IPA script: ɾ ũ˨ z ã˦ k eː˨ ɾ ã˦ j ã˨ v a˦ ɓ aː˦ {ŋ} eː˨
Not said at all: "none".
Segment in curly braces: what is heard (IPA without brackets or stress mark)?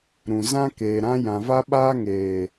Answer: ŋ